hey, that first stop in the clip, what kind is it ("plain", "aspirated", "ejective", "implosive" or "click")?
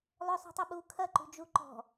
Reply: plain